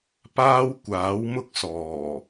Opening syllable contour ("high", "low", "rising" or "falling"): high